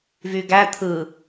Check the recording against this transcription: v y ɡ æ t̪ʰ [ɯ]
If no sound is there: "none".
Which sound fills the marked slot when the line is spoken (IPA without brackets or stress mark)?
ɯ